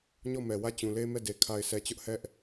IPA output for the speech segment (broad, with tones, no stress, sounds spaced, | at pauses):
ɲ ɔ˦˨ m ɛ˨ w ä˦˨ t͡ɕ ũ˨ l e˦ m ɛ˦˨ d e˨ kʰ a˨ ɪ̯ s ɛ˨ t͡ɕ ʊ˦ ʔ h ɛ˦ ʔ